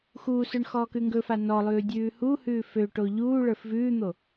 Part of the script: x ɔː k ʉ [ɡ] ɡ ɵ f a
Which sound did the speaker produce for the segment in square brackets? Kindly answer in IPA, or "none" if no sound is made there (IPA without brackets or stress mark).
ŋ